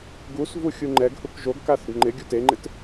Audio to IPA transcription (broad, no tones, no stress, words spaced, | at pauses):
ɡusvu xʲuŋ͡ǃɛɡhuk ʒoɡka θʊɡŋ͡ǃɪɡʲu teŋ͡ǃɪt